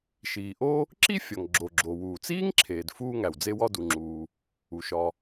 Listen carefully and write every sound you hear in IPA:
ʃ iː˩ ʔ o˥ | ǁ i˥ fʲ ɒ˩ ŋ ɡ͡ǁ o˩ ɡ͡ǁ o˩ w uː˩ t͡s iː˥ ŋ ǁʰ eː˩ d f uː˥ ŋ æ˩ w d͡z e˥ w ɒ˥ d u˩ ŋ͡ǁ uː˩ | u˩ ʃ ɒ˩

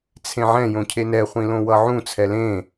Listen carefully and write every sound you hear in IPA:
t͡sʰ ẽ ʕ ɛ̃ j õ cʰ e n ɛ χʷ ĩ l õ w ʌ ʕ ũ t͡sʰ ɛ l ẽ

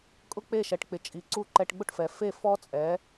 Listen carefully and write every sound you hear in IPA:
kʼ ʊ˥ k͡p e˥˩ ʃ ɛ˩ ʈ k͡p ɪ˩ t͡ʃʼ i˩ ǀ u˥˩ ǃ ɛ˧ ʈ ɡ͡b ʊ˥ ʈ f ɛ˩ f e˥˩ f ɔ˥ t͡sʼ ɛ˩˥

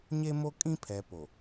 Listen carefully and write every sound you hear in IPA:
ɲ e˦ m o˦ kʼ ĩ˦ pʰ ɛ˨ p o˨

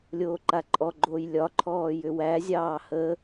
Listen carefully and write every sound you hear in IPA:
lʲ oː ǃ a ǃʼ ɔ ɡ͡ǃ oː j lʲ ɒ ǃʰ ɔː j ʏ w æ zʲ ɑː h ə

